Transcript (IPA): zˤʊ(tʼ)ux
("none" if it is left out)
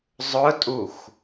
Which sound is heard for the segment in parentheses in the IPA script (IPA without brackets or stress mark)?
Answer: tʼ